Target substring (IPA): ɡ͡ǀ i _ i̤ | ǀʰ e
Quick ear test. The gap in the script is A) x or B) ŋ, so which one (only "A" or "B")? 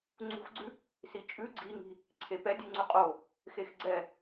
B